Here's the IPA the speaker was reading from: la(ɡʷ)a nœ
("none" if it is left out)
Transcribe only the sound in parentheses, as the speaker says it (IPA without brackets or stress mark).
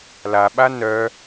ɓ